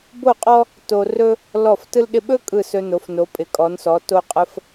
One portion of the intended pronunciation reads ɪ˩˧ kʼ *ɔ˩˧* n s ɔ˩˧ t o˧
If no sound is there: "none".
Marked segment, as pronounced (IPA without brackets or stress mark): ɔ˩˧